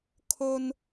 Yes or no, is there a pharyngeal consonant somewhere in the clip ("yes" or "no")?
no